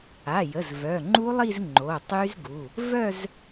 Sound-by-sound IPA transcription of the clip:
a˩˧˩jə˩˧˩z vœ˩˧˩ŋ͡ǃu˦˥lˠi˥˧z ŋ͡ǃo˩˧˩tˤy˦˥zɡu˩˧˩ | vœ˥˧z

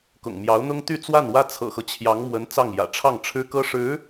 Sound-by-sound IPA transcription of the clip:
kʊ̰˨˩ŋmjɑ˧˥ʊ̯n̪ʊ˥ŋt̪y˥˧ t͡swa˥˩nwä˥ t͡sʰɤ̰˨˩xɤ˦t͡ɕʰjɑ˧˥ŋmwə˧˥n t͡sɑ˥˩ŋjä̰˨˩ ʈ͡ʂʰɑ˥˩ŋʈ͡ʂʰɻ̩˥ kɤ˥ʂɻ̩˧˥

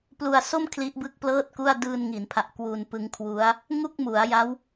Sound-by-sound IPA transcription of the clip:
plu˧a̯so˥˩m kʰli˦˥ʔbɯ˥˩k̚plɤː˥˩t̚ku˥˩a̯ dɯː˧nŋi˩˦npʰa˨˩ʔ kwu˧npɯ˦˥ŋkʰwu˦˥a̯ | ŋu˥˩k̚mu˩˦a̯ja˦˥w

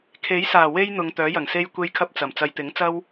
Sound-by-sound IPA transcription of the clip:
kʰe˨˥jsaː˨˩ we˥j n̪ʊ˨˧ŋt̪œː˨˥jɐ˨˩ŋ se˥jkʷe˥jkʰɐ˥p̚t͡sɐ˨˩m t͡sɐ˨˧jt̪ɪ˨˥ŋ t͡sɐ˥w

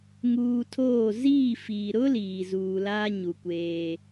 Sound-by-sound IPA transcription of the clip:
ŋuː˨ tʰoː˦˨ ziː˦˨fiː˨ ɾʊ˦ liː˨zuː˨laː˦ ɲu˨kʷeː˦

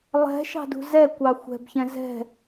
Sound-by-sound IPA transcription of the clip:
lˠɛ̤ʃɑ̤dṳ zɛkʷɑ xʷɛ̤bçɛ̃ zɛ̤

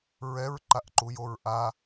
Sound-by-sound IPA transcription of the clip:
ɹɛɹǃaʔǃujoɹ ʔa

